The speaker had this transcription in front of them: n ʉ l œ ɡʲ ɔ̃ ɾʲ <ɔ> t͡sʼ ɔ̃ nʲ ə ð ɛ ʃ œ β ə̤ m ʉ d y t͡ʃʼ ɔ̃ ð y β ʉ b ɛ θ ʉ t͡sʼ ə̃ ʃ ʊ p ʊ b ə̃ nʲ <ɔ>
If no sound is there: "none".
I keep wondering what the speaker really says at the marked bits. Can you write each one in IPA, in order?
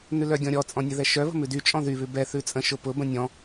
ɔ, ɔ̃

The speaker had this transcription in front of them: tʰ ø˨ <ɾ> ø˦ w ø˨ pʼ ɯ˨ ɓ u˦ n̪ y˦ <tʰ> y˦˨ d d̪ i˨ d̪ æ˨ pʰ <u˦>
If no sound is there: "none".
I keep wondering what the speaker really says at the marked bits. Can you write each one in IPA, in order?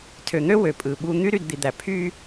n̪, ɾ, y˦

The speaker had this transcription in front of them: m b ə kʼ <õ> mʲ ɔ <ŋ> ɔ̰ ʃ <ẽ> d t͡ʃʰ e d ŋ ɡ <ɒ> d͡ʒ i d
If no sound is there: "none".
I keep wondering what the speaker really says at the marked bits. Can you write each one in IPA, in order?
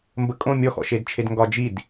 õ, x, e, ɒ

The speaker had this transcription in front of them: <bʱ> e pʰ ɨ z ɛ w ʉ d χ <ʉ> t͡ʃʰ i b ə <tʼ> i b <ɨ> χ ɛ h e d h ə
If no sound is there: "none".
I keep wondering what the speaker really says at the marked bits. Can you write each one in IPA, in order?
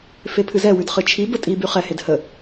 f, ɨ, tʼ, y

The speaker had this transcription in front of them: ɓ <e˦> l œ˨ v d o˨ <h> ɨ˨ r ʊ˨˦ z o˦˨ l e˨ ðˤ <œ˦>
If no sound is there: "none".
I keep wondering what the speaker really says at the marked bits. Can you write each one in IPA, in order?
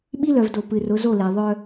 i˦, p, œ˦

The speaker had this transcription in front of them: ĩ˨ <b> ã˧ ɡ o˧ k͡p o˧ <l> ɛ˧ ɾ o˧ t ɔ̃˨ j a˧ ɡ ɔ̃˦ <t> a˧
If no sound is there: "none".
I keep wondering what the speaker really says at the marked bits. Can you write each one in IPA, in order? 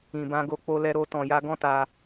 b, l, t

